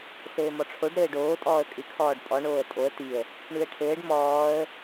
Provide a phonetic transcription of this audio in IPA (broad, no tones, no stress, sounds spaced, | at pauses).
s ɘː m ɔ ʈ͡ʂʰ o ɖ ɾ ɘː ɖ oː tʼ ɔː ə̯ kʼ ɨ kʰ ɔː ɖ pʼ ɔ ɳ oː ə̯ tʼ o ə̯ t̪ i ə̯ | ɳ ʉ ə̯ ʈʰ ɘː ɖ m ɔː ə̯